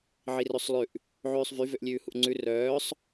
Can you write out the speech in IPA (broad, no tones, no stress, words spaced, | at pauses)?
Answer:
ʕirøsˤlˠʉʔ | ʕʉːsˤvy vøʔlʲʉːhuʔŋ͡ǀʉ rœːsˤ